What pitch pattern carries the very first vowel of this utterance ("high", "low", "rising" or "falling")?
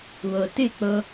low